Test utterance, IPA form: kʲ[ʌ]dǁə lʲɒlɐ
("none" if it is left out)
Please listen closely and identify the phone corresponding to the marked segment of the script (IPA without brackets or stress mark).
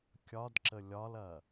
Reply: ɒ